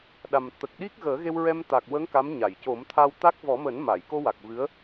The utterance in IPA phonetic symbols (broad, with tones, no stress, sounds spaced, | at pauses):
ɗ a˨˩ m t̪ ə˨˩ k̚ ɗ i˦˥ k̚ ɣ əː˨˩˦ ɣ e˧ w ɹ ɛ˧ m t̪ a˨˩ k̚ w ə˧˥ ŋ k a˧˥ m ɲ a˨˩˨ j c o˨˩˦ m t̪ʰ a˧ w t̪ a˦˥ k̚ v ɔ˨˩˦ m əː˨˩˦ n m a˨˩˨ j k o˧ w a˨˩ k̚ v ɨ˧˥ ə̯